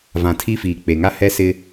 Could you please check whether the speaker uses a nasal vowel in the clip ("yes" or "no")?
yes